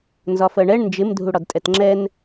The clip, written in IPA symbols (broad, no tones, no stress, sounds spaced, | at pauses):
n z ɒ f ɜ ɳ ɛ ɳ n d͡ʒ ɪ m dʱ u ɽ ɒ d tʼ ɛ t ŋ͡ǁ ɛ n